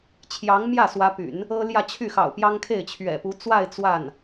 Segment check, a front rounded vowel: present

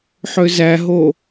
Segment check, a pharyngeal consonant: present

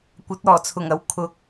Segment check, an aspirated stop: present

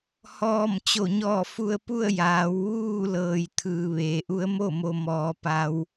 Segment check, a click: absent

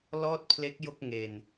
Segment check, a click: absent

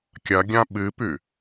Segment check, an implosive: present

